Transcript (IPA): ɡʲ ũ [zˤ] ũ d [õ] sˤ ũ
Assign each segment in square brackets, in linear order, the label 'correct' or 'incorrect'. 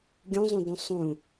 correct, incorrect: ũ

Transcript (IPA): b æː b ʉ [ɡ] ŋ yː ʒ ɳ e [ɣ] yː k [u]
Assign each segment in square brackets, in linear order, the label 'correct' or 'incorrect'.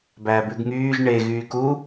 correct, correct, correct

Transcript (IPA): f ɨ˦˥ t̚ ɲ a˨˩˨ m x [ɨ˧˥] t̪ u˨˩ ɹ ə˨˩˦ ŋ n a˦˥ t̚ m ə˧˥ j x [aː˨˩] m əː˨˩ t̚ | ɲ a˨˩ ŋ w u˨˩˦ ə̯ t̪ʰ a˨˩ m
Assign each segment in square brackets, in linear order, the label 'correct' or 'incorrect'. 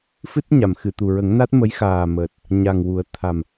incorrect: ɨ˨˩˨, correct

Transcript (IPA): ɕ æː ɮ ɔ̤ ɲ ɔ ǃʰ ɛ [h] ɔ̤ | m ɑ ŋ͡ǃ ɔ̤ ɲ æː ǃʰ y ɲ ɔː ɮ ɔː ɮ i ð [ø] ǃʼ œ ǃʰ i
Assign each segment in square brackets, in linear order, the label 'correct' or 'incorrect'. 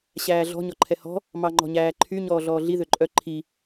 correct, correct

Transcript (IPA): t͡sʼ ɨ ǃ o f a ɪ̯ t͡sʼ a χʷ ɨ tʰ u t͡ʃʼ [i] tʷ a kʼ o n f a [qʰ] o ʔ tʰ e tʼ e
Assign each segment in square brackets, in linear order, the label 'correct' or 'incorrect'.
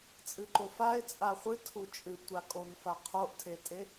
incorrect: ɨ, correct

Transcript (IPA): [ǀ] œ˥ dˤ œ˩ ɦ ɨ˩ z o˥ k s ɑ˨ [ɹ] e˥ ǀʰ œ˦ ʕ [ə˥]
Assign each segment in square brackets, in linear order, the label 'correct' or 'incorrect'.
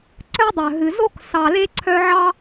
correct, incorrect: l, incorrect: ɑ˥

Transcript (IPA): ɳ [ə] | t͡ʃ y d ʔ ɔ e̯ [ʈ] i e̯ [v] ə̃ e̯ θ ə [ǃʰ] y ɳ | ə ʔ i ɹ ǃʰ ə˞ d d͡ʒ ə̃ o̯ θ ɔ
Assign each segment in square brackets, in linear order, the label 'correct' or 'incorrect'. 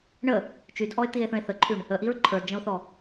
correct, incorrect: t̪, incorrect: θ, correct

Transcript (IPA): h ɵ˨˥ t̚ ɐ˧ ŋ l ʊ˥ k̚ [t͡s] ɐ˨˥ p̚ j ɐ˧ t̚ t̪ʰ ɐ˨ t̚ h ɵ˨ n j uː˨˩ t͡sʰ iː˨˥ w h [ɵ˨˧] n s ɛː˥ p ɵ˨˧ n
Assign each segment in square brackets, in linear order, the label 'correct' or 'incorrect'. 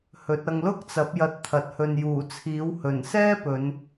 correct, incorrect: ɵ˨˩

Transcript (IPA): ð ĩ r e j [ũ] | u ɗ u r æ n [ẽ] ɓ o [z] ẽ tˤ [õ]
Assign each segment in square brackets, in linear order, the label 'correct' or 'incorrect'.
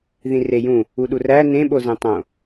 correct, correct, correct, correct

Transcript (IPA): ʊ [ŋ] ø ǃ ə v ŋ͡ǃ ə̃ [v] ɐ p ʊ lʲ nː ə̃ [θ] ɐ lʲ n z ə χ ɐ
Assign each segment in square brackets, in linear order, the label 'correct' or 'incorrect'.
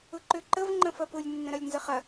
incorrect: ǃ, incorrect: f, incorrect: ɾ

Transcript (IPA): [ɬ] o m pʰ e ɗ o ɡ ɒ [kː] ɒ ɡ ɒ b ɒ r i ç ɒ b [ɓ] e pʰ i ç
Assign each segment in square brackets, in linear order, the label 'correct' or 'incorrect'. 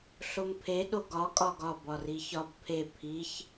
correct, incorrect: kʼ, incorrect: pʰ

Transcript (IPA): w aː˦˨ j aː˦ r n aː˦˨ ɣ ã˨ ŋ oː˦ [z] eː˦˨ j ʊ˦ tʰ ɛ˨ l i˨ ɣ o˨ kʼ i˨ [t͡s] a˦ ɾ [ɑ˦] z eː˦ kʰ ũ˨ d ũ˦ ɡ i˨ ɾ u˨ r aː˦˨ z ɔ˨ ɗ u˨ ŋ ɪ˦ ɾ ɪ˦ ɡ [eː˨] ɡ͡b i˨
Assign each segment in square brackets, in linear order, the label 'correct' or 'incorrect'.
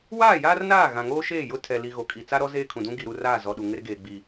incorrect: ʃ, correct, incorrect: ɔ˦, correct

